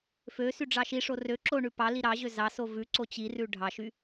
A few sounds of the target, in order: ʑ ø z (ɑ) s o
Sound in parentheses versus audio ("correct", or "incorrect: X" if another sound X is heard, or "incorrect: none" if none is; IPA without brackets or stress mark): correct